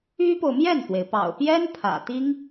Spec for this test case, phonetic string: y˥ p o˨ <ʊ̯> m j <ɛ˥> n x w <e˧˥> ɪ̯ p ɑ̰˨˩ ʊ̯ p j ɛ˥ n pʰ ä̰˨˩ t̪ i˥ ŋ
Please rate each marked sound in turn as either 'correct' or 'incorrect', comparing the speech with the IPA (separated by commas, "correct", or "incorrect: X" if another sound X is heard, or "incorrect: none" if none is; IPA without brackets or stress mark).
correct, incorrect: ɛ˥˩, incorrect: e˩